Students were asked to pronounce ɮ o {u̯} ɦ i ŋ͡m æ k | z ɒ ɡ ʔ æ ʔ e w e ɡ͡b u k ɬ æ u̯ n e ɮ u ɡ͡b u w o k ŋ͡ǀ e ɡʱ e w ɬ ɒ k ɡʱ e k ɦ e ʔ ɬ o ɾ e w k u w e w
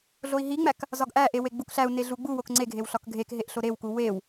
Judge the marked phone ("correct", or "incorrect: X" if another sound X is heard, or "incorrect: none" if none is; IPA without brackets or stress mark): incorrect: i̯